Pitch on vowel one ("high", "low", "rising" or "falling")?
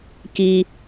high